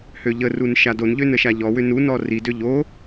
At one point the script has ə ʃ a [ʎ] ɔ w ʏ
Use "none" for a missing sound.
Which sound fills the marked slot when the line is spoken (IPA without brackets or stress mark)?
ʎ